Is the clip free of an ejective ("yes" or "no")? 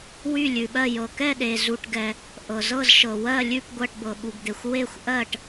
yes